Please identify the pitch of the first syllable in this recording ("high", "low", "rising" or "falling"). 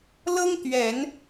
high